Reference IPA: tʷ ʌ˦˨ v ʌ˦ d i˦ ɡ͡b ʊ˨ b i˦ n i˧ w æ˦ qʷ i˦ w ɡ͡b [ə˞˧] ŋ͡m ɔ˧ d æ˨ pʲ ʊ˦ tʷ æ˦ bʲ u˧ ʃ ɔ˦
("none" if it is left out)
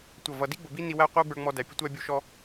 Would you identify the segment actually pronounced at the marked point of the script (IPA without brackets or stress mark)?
ə˞˧